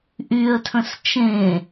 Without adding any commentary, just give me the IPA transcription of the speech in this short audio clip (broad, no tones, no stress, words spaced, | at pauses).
ʔyə̯tʰə̃s t͡ʃẽ